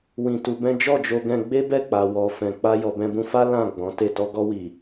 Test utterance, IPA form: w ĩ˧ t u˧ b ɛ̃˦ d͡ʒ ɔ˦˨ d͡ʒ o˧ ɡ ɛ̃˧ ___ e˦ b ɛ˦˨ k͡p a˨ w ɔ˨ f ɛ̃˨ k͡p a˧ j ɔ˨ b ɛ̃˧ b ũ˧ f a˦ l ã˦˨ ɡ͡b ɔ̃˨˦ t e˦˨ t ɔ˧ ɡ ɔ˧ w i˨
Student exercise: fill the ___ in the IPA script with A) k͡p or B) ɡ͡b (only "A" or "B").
B